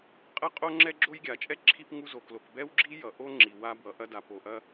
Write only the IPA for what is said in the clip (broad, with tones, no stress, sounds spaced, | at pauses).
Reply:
qʼ ɐ˥ qʼ o˥ ŋ͡ǁ ɛ˥ ɡ͡ǁ o˥ j ɡʲ a˩ t͡ʃʼ ɛ˥ ǁʰ i˥ p ŋ u˥ z o˩ k l o˩ k b ɛ˥ w ɡ͡ǁ i˥ j ʌ˩ ʔ o˥ ŋ͡ǁ i˩ w a˥ b w ʌ˩ ʔ ɐ˥ d a˩ p o˩ ʔ ɐ˥